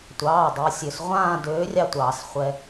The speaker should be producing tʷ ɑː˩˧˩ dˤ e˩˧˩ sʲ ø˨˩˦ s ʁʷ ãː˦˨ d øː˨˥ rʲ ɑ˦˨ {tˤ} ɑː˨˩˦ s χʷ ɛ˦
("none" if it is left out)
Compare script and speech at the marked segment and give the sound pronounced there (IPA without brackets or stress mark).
tʷ